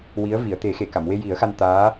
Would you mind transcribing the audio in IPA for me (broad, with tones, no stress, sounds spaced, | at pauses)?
w i˧˥ ə̯ v i˨˩˨ ə̯ t̪ e˨˩˦ x e˨˩˨ k a˨˩˨ m w e˧ j i˨˩˦ ə̯ x a˧ n t̪ aː˧˥